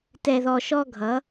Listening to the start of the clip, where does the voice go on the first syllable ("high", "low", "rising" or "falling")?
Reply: low